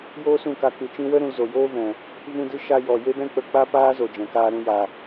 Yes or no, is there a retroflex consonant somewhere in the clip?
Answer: no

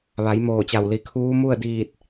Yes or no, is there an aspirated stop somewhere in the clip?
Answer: yes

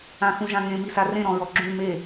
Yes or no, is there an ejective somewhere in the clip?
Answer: no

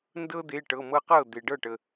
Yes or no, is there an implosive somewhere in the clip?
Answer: no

